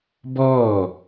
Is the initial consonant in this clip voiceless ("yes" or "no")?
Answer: no